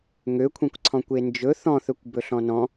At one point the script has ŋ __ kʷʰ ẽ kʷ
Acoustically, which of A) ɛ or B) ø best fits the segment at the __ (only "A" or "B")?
B